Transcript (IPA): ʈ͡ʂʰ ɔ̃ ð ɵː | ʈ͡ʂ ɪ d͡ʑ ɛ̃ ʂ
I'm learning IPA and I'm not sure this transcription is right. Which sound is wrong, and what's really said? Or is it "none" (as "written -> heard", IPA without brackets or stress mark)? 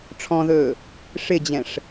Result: ʈ͡ʂ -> ʂ